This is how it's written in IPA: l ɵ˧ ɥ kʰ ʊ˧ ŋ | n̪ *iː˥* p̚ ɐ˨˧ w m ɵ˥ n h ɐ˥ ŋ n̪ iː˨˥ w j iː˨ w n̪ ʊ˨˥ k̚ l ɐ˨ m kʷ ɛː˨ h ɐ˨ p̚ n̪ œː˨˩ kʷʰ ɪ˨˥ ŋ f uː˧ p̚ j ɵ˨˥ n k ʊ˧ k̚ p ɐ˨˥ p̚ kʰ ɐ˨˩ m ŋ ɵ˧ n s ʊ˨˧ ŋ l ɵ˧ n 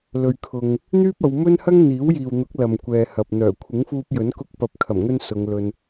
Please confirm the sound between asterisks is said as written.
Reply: no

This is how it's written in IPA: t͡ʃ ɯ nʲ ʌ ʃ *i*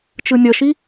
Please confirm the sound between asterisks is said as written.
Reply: yes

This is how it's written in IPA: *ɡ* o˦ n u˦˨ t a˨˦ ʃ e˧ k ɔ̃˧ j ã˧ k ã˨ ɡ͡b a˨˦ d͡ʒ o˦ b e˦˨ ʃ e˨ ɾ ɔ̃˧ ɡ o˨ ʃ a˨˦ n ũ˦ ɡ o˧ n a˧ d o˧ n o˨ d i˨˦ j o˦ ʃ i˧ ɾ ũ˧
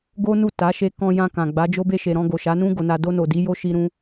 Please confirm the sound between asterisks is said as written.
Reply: yes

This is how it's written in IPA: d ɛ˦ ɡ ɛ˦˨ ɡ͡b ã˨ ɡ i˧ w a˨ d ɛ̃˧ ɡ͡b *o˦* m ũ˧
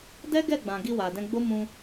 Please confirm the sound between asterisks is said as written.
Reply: yes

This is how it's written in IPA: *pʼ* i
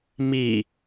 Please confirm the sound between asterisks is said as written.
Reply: no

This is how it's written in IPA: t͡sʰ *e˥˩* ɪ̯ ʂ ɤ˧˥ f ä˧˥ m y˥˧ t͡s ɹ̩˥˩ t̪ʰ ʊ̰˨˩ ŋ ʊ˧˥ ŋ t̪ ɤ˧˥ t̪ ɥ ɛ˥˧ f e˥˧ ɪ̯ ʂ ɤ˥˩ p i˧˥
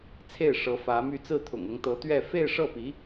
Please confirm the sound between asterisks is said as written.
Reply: yes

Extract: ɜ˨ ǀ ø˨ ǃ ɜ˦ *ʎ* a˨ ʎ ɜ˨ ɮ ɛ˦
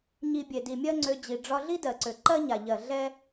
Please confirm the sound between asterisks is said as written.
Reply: no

